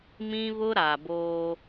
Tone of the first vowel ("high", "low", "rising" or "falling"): high